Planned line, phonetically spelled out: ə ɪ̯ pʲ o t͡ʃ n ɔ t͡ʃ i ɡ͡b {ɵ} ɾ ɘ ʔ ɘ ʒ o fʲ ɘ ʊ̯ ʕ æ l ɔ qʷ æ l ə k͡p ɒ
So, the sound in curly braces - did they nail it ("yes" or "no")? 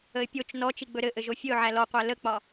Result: yes